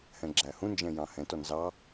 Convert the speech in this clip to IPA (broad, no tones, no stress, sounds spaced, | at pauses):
h ɛ̃ ɡ͡ǁ æ h ũ n d͡ʒ ɛ̃ j ɑ̃ h ɛ̃ t ɔ n z ɑ